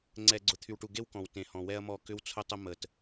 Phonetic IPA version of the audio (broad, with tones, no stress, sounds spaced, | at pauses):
ŋ͡ǀ ɛ˨ ɡ͡ǀ ʊ˨ t̪ʰ y˨ w ʈ u˨ ɡ e˦ w k ɔ̃˨ w t ẽ˨ h ɔ̃˨ w ɛ˦ ɐ̯ m ɔ˦˨ k ʏ˦ w t͡sʰ ʊ˦ tˤ ə˦ m ə˨ t